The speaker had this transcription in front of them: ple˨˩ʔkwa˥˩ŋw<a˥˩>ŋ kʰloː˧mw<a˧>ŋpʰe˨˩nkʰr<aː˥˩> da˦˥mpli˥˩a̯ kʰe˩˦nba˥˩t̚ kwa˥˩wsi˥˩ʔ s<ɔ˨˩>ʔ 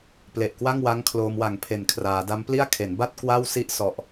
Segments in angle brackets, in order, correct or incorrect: incorrect: a˦˥, incorrect: a˨˩, incorrect: aː˩˦, correct

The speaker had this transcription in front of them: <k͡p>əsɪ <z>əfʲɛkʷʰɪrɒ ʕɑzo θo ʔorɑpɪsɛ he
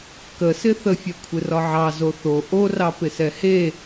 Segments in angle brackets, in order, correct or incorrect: incorrect: k, incorrect: θ

